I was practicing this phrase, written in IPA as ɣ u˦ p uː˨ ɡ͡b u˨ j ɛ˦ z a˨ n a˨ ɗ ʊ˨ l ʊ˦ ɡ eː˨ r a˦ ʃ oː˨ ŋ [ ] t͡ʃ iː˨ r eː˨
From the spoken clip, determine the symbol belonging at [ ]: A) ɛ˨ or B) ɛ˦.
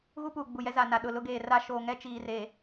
B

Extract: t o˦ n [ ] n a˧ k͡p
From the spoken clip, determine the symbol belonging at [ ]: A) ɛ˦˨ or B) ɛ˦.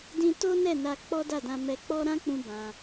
A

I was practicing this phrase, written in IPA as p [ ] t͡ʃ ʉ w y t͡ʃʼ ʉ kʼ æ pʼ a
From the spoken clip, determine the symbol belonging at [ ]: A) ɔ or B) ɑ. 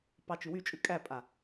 B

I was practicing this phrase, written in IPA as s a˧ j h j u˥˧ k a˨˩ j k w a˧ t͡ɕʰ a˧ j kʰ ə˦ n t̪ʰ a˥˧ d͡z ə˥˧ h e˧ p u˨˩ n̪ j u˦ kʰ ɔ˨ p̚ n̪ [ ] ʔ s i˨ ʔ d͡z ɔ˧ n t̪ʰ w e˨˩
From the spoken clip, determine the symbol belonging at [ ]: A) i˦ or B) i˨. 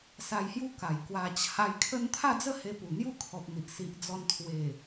B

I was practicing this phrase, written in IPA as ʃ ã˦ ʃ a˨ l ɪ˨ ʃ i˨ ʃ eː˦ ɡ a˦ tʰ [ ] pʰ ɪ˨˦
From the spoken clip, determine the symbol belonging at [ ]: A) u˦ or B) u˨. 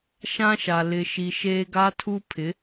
A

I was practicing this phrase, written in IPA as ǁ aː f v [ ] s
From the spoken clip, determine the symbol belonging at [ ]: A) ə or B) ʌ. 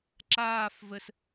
A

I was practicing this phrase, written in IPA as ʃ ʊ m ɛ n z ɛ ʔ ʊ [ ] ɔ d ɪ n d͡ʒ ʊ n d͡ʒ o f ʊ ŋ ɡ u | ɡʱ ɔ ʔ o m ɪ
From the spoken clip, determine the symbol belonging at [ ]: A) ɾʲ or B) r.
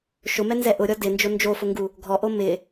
A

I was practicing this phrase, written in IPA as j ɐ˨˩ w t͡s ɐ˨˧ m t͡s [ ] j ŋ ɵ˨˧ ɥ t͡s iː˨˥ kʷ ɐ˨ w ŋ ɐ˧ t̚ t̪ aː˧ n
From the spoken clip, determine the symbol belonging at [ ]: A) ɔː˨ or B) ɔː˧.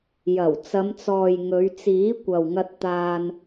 A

